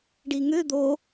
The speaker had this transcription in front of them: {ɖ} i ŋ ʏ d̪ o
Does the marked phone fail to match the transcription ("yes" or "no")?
no